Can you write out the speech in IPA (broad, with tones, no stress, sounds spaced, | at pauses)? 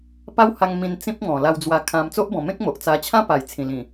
p a˦ w h a˧ ŋ m ĩ˧ n t͡s ĩ˦ p̚ ŋ ɔ̃˨˩ l a˧ w d͡z w a˧ kʰ ã˧ m t͡s o˦ ʔ b ɔ̃˨˩ m ẽ˦ k̚ m o˨ ʔ t͡s a˧ t͡ɕʰ ã˦ p a˨˩ j t͡sʰ ĩ˨˩ l ĩ˨˩